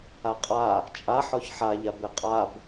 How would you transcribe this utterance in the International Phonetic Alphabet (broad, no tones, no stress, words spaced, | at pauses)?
aqʼa | t͡ʃʼaħɔç ħaʎab eqʼab